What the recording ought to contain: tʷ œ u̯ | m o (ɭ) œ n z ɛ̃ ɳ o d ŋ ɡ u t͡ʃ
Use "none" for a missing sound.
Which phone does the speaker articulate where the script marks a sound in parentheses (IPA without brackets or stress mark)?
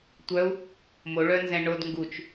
ɭ